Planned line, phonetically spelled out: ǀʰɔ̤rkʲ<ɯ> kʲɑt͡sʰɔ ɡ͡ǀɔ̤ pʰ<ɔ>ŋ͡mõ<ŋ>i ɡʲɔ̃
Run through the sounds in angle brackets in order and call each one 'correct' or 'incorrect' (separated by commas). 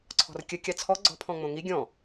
incorrect, incorrect, correct